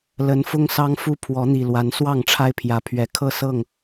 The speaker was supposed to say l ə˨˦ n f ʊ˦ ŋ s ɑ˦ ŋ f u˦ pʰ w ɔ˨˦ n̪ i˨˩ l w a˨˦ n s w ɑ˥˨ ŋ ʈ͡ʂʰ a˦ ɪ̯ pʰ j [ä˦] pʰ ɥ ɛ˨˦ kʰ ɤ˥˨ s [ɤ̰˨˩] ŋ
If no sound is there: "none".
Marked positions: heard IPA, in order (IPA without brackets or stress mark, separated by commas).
ä˨˦, ɤ˥˨